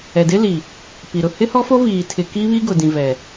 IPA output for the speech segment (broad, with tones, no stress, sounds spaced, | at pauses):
ɛ˨ d ɪ˦ l i˨ | p i˨ ɾ ʊ˨ h ɪ˦ h ɔ˦ f o˦ v iː˨ tʰ ɪ˨ k i˦ β i˦ ɡ ʊ˨ d ĩ˨ v ɛ˨